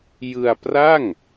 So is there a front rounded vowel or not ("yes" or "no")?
no